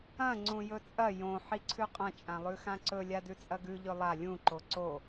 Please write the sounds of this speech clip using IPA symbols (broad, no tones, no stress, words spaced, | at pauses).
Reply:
ɐ̃ ŋ͡ǀũjɵt͡sʼɐ jõ ħiǀʰʉqʼɐ̃ t͡ʃʼãlˠʉxãǀɵ lʲadʉt͡sʼɐɡʉ ʎɵlˠa lʲũ ǃoǀo